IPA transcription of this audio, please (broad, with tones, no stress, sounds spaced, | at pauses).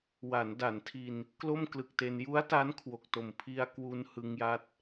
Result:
w a˩˦ n d a˩˦ n tʰ i˧ n | k l o˥˩ m k l ɯ˨˩ k̚ t e˧ n j u˦˥ a̯ t a˦˥ n kʰ w o˨˩ k̚ t o˨˩ m pʰ i˧ a̯ k w u˧ n h ɯ˧ ŋ j a˦˥ t̚